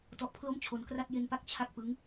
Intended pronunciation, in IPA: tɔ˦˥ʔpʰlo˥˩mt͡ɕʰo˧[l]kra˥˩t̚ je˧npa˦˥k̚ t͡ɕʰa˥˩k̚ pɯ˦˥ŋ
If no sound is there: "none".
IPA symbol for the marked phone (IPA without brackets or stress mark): n